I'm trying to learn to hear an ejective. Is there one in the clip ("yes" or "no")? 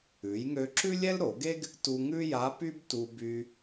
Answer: no